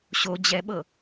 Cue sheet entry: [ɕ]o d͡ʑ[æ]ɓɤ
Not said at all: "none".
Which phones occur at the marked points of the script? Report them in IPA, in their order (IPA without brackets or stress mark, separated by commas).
ɕ, ɛ